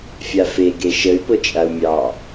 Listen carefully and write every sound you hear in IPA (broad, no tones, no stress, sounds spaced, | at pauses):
fʲ a f e ɡ e ʃ ə y̯ p ʊ t͡ʃʼ a u̯ mʲ ɑ